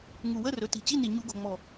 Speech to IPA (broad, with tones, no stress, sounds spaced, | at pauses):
ŋ u˨˩ w ə˧˥˧ r ɵ˩˧ t i̤˨˩ t͡ɕ i˧˥˧ n i˨˩ ɲ u˧˩˧ ɡ o̤˨˩ ŋ͡m ɔ˨˩